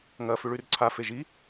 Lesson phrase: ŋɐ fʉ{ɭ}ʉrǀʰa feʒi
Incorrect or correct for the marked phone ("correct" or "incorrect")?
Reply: correct